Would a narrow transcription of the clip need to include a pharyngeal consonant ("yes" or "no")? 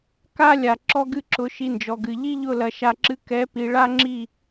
no